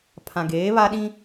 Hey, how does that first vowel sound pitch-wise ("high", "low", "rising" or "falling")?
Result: low